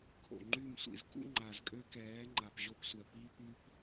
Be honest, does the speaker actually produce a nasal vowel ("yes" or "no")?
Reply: no